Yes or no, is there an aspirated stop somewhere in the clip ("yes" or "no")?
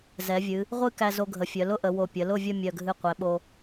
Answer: no